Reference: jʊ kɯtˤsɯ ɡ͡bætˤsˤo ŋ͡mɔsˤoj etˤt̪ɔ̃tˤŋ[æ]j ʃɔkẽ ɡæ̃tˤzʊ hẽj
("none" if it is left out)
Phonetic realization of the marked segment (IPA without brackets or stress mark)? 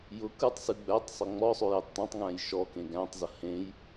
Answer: æ̃